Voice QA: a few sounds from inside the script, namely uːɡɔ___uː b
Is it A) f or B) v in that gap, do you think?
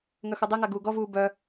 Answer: B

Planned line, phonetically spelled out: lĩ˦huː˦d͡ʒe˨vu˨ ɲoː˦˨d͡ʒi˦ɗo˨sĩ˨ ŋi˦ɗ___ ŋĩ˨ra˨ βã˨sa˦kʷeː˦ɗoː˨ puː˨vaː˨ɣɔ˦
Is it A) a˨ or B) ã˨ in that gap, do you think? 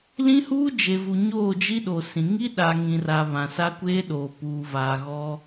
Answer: A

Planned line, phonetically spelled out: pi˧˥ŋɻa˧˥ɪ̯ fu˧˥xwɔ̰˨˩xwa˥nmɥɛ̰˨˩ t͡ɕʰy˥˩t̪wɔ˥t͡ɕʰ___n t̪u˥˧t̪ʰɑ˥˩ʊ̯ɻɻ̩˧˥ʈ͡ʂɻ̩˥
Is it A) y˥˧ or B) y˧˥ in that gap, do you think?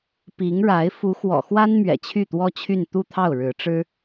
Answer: A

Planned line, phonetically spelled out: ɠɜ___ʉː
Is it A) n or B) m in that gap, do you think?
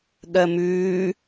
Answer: B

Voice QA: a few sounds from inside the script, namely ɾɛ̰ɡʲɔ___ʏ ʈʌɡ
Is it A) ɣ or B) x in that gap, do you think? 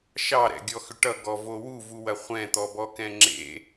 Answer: B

